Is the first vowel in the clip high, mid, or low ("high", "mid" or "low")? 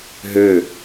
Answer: mid